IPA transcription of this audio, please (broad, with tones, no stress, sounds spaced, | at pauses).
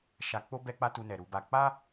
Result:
ʃ a˧ k͡p o˦ b ɛ˧ k͡p a˧ t u˧ n ɛ˨ ɾ u˧ b a˧ k͡p a˦